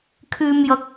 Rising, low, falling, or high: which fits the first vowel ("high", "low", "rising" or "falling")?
low